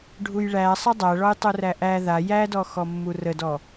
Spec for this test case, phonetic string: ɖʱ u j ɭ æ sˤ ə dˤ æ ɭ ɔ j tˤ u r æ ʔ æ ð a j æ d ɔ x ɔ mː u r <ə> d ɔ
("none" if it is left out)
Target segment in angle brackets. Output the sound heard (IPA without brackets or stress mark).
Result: ə